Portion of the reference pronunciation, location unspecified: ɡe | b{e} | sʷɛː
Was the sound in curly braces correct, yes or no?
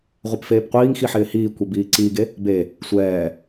yes